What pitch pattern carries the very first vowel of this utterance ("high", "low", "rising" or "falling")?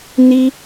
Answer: high